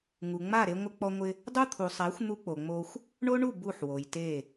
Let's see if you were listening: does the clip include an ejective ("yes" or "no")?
no